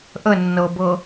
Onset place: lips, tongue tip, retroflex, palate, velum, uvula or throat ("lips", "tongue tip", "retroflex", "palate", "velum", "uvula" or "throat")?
throat